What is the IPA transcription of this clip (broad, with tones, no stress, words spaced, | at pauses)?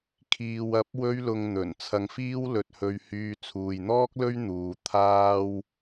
kʰiː˨w ɐ˨˥p̚ wɵ˧ɥlʊ˨ŋ n̪ɵ˨˩n t͡sʰɐ˨ŋfiː˥w lɵ˧t̚hɵ˧ɥhyː˧ t͡sʰuː˨jn̪ɔː˥k̚lɵ˥ɥ n̪uː˧ t̪ʰaː˥w